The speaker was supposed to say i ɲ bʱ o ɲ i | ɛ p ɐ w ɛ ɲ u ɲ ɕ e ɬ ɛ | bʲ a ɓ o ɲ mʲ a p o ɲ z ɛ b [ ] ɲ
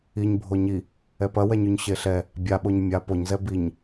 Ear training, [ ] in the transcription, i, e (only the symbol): i